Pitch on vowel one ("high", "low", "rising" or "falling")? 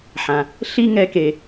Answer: low